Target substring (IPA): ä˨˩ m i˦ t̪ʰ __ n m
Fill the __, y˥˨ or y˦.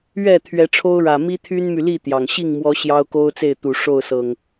y˦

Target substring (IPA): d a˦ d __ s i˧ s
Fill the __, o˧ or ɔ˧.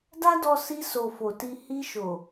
ɔ˧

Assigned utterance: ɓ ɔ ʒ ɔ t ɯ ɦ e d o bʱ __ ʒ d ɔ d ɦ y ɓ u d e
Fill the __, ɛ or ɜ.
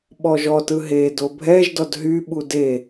ɛ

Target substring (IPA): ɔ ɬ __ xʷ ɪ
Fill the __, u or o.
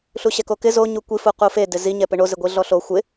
o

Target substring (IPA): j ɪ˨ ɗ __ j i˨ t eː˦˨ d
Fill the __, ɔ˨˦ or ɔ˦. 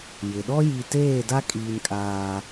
ɔ˦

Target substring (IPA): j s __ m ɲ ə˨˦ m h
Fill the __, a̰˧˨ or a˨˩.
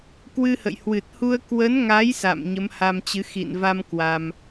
a̰˧˨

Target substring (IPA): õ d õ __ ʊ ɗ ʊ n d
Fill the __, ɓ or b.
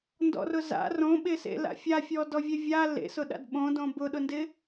b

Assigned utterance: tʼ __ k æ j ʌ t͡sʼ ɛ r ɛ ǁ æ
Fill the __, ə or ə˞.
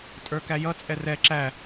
ə˞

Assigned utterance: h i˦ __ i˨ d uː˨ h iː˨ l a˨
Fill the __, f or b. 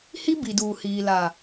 b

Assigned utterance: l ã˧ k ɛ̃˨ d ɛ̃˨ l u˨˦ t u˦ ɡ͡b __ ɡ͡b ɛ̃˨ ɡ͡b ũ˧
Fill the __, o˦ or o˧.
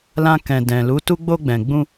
o˧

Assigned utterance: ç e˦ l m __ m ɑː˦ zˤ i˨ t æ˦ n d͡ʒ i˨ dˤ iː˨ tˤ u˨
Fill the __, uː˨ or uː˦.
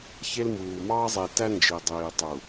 uː˨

